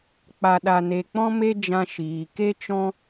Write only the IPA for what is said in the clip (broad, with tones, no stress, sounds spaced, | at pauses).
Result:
k͡p a˧ ɗ a˧ n e˧ k͡p ɔ̃˦ m e˦ d͡ʒ ã˧ ʃ iː˨ k e˦ t͡ʃ ɔ̃˦